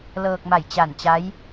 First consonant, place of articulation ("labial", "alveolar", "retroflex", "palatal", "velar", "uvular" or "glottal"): alveolar